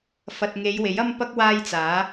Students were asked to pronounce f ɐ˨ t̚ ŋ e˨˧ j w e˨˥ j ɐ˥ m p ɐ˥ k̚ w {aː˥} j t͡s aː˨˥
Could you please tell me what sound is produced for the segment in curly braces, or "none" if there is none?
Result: aː˥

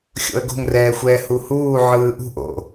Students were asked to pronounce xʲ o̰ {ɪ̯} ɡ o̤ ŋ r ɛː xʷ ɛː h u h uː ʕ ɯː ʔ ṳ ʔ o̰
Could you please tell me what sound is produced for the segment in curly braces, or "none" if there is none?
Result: ə̯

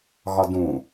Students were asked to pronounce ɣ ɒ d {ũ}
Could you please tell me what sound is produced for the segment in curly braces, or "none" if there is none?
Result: ũ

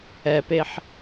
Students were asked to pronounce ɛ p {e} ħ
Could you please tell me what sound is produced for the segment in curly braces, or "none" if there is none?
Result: e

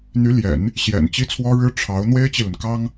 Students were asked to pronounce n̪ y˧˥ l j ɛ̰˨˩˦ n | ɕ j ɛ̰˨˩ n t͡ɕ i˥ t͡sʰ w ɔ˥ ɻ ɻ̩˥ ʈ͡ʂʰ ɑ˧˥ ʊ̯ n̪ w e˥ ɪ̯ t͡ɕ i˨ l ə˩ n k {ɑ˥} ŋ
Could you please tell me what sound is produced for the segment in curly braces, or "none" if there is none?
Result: ɑ˥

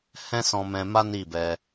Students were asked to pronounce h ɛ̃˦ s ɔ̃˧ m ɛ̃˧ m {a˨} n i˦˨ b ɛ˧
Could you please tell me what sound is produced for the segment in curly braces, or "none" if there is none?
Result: a˦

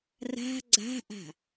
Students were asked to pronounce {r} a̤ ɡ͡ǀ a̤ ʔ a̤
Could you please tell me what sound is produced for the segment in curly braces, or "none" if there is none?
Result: r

